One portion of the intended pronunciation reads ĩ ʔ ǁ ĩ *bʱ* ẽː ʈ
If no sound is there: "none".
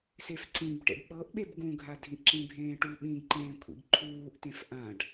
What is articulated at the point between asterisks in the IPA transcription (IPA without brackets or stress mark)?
bʱ